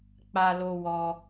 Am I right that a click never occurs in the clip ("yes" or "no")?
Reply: yes